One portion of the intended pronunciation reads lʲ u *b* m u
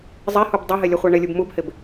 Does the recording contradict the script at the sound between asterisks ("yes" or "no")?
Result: no